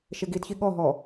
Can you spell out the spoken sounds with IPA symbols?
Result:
ʃ e ɡ i d ç i ɠ ɔ ɦ ɔ

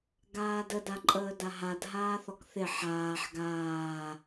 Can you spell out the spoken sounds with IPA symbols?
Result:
ɡ aː d ə d a ǃʼ əː d a ɦ a d ɦ aː θ ɔ k θ ɪ ħ aː ħ ɡ aː

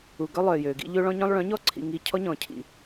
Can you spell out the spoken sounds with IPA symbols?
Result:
u˨ ɡ œ˦ lˠ œ˨ j ø˨ ɡ ḭ˦ ʎ ø˦ ɭ ɔ̃˦ ɲ œ̃˦ lˠ ɭ œ̃˨˦ ɲ ɔ˦ ǀʰ ḭ˨ ŋ i˨ cʰ ɔ˦ ɲ ɔ̃˨ cʰ ḭ˨

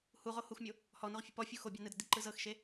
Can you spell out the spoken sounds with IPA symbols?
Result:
h u ʁ o h u x mʲ o | h ɔ n o ʁ fʲ e p ɔ fʲ u x o bʲ a n ɯ d ɤ d i ǃ ɯ z ɤ x ʃ e

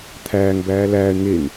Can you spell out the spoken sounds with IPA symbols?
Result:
t̪ʰ æː ŋ b æː l æː ɳ ŋ e ŋ

